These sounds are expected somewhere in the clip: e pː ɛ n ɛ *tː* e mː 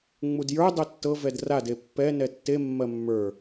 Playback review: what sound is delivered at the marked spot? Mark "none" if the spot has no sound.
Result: tː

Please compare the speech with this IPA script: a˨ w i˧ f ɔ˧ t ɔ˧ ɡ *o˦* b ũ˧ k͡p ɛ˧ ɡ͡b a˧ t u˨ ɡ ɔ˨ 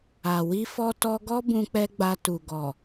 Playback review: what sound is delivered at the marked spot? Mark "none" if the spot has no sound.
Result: ɔ˦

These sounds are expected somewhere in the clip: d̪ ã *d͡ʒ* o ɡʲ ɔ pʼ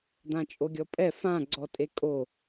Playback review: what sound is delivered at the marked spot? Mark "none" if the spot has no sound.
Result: t͡ʃʼ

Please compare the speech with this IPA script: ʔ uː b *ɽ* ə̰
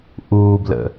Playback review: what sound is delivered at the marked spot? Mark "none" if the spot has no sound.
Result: l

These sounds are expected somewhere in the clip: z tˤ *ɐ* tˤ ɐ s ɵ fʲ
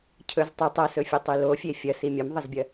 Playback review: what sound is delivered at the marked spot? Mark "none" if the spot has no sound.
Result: ɐ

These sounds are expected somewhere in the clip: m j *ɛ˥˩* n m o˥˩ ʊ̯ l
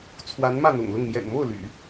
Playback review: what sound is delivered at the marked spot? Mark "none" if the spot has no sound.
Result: ɛ̰˨˩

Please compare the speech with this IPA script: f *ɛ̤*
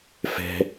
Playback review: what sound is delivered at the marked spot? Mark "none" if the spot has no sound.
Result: ɛ̤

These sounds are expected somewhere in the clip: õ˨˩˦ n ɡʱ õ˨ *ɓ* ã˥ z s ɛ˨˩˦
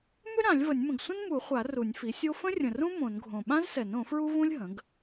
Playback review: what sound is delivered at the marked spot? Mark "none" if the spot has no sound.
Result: ɓ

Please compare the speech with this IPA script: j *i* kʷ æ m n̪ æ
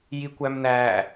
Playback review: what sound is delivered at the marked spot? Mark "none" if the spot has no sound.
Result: i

